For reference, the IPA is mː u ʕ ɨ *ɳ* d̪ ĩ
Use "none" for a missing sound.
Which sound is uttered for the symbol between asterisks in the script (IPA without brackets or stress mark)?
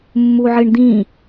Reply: ɳ